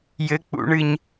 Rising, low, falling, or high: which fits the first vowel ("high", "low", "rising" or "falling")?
high